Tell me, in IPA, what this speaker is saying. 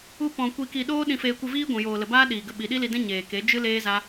u˦ p ɔ̃˧ kʷ i˧ k i˧ ɗ oː˦ ɗ ĩ˧ f eː˧ kʷ ɨ˧ v iː˦ ɡʷ ũ˨ j oː˨ l ə˨ b aː˦ ɗ iː˨ ɡ ə˧ ɓ i˨ ɗ i˦ l i˧ d ɛ̃˦ ɲ eː˨ k e˨˦ d͡ʒ ɨ˦ l eː˦ z a˦

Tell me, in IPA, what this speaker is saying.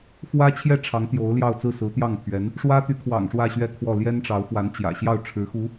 x w ä˥ t͡ɕʰ j ɛ˥˩ ʈ͡ʂʰ ɑ˧˥ ŋ t̪ j o˧˥ ʊ̯ l j ɑ˥˧ ʊ̯ t͡s ɹ̩˥˩ s ɹ̩˧˥ t̪ j ɑ˥˩ ŋ pʰ ɥ ɛ˧˥ n | ʂ w ä˥ t̪ y˧˥ kʰ w ɑ̰˨˩ ŋ ʂ w ä˥˧ ɕ ɥ ɛ˥˧ kʰ w ɔ˥˩ l j ɛ˥ n ʈ͡ʂ ɑ˧˥ ʊ̯ f w a˧˥ n t͡ɕ j ä̰˨˩ ɕ j ɑ˥˩ ʊ̯ ʈ͡ʂʰ ɻ̩˧˥ x u˧˥

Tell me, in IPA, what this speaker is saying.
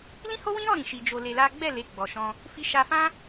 l ĩ˦ h o˦ w ĩ˦ ɾ ɔ˦˨ ɾ ĩ˧ ʃ i˧ d͡ʒ o˧ l e˧ l a˦ ɡ͡b ɛ˦˨ l e˨˦ ɡ͡b ɔ˧ ʃ ɔ̃˦ | f i˧ ʃ a˧ f ã˦

